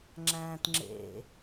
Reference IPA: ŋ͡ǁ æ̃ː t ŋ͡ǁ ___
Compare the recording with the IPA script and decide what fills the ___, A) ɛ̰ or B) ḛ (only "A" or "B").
B